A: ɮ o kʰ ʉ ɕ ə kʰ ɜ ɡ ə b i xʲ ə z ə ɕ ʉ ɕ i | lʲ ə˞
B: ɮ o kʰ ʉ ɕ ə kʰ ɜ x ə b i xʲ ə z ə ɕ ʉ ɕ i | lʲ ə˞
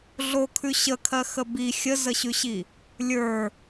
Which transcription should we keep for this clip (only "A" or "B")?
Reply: B